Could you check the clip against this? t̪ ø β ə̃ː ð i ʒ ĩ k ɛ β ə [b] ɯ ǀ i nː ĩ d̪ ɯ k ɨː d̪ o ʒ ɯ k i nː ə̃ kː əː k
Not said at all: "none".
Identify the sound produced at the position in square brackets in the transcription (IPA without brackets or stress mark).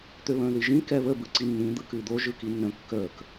b